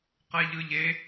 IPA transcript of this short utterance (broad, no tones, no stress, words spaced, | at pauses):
qɛʎɯʎe